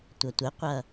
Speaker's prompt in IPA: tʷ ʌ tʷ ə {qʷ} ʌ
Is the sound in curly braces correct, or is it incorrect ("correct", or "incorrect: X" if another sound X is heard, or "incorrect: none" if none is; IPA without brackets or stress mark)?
correct